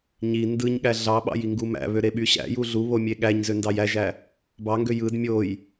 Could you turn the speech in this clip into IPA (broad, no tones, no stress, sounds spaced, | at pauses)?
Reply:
ɲ i n d ɯ ɲ ɠ æ ɮ ɑ ɓ ɑ̰ j i ŋ ɡ u m æ̰ β ø ɾ e ɓ y ɕ æ̰ j u ɮ u β o mʲ e ɠ æ ɲ z ø n d ɑ j æ ʒ æ | b ɑ ŋ ɡ ø j ɯ d mʲ o j